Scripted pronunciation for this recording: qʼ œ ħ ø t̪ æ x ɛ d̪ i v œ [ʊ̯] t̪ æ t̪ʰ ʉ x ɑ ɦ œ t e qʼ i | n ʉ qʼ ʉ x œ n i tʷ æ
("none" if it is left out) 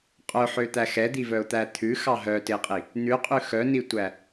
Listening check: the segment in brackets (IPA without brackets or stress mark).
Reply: ʊ̯